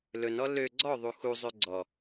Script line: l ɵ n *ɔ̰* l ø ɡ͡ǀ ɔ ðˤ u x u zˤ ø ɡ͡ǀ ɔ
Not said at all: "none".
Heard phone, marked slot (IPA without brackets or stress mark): ɔ